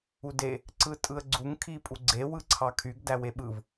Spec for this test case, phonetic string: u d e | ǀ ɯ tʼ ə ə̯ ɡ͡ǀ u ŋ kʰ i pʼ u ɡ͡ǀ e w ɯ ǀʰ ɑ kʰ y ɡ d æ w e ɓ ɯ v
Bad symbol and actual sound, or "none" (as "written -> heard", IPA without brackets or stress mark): ə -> ɯ